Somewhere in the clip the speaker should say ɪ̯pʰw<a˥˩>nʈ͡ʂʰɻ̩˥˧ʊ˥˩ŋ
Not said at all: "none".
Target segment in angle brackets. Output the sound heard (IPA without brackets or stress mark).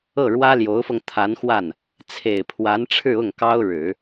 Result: a˧˥